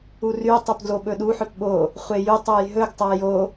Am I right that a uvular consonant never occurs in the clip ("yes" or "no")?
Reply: no